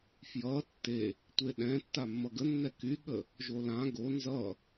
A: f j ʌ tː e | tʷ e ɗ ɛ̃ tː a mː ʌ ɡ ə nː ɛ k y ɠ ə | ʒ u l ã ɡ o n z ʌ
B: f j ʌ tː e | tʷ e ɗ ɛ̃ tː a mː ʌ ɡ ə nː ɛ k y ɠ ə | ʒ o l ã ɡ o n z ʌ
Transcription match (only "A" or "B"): B